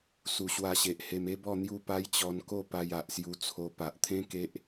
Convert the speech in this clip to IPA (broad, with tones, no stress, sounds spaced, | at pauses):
s u˨˩ ɕ w a˧ ɕ e˨ ʔ h e˧ m e˦ b ɔ˥˧ n̪ j u˥˧ p a˦ j t͡ɕ ɔ˧ n k o˥˧ p a˧ j a˨ ʔ s j u˧ t͡sʰ o˧ p a˨ ʔ t̪ʰ ẽ˦ k e˦ ʔ